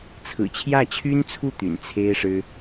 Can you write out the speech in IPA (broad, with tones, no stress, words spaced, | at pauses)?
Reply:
t͡sʰɹ̩˨˩t͡ɕʰjä˥˩t͡ɕʰy˥nt͡sʰu˥˩ t̪y̰˨˩nt͡sʰe˥ɪ̯ʂɻ̩˥